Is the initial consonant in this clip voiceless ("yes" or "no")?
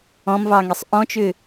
no